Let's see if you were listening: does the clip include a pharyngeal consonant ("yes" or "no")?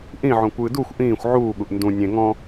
yes